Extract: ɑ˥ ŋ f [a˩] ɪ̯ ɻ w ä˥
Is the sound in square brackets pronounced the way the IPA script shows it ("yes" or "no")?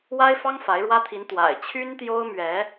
no